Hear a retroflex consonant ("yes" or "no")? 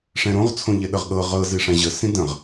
yes